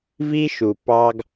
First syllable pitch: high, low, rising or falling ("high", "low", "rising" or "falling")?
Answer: high